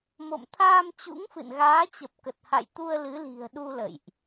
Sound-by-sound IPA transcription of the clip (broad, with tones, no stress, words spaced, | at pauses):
mo̰˧˨mt̪ʰaː˧m t͡ɕṵ˧˥ŋfɨ̰˧˨nɣaː˨˦t͡ɕə˨˩p̚ kə˨˩t̚ha̰˧˨jt̪u˧ə̯ lɨ˨˦li̤˨˩ə̯ɗu˧ lə̰˧˨jʔ